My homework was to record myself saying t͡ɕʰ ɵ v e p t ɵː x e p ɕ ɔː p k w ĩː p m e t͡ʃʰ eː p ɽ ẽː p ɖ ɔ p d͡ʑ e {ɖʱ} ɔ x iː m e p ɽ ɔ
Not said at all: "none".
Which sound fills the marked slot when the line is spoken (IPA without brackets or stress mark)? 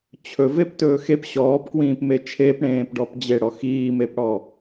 ɽ